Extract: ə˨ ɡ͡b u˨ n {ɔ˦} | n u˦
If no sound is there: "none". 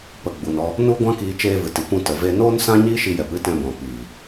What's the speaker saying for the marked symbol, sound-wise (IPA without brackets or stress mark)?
ɔ˧